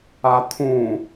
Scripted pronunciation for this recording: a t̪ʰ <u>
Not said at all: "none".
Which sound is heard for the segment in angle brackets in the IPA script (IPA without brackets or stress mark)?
ũ